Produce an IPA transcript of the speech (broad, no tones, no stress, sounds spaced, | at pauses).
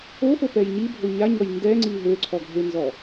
o f o p ɛ j ɲ i bʱ o ɲ a ɲ ɔ j n d ɛ ŋ͡ǀ i ɦ ø ǀʰ ɔ ɡʱ e n z ɔ